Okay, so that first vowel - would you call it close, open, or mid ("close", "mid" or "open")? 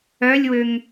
mid